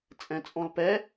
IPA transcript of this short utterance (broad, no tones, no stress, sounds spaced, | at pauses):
t͡sʼ ɛ̃ t͡sʼ ɔ̃ l p ɛ